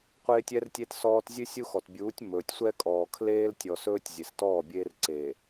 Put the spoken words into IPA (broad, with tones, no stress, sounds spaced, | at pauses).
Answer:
qʷ eː˦ tʲ ɛ˦ r tʲ e˦ t s ɔː˦ t zʲ ʉ˦ sʲ u˦ x ɔ˨ t bʲ uː˨˦ tʲ m ɵː˨ tʲ sʷ ɛ˦ kʼ ɔː˨ kʰ l eː˦ l tʲ ɔ˨ s ɵː˦ tʲ zʲ e˨ s t ɔː˦˨ bʲ eː˦ r ǀ eː˨